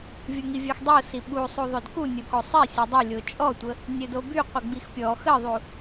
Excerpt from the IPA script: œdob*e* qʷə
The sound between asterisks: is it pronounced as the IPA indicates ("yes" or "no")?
no